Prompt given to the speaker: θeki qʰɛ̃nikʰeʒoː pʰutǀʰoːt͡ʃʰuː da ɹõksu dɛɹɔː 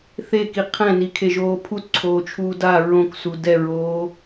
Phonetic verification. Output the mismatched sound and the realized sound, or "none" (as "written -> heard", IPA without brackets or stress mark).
ɔː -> oː